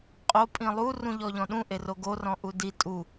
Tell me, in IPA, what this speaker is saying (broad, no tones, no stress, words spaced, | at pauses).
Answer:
qʼo pʼĩlˠu rũʎɔʎɔ̃ɗũ ʔeroɡorɔ̃ ʔudi tʼu